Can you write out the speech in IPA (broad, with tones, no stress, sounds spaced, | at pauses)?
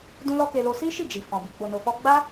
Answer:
d ũ˦ l ɔ˦ k e˧ l o˧ s i˦ ʃ i˦˨ d͡ʒ i˨ f ɔ̃˨ b i˨ ɡ͡b o˨ n o˨ f ɔ˧ ɡ͡b a˦